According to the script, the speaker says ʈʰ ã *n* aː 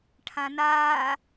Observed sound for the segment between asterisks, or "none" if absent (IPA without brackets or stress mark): n